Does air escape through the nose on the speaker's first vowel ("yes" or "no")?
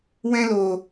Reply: yes